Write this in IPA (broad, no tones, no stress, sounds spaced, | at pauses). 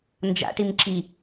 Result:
n d͡ʒ a̰ ʈ i m ǁ i